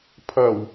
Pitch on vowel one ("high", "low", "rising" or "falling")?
low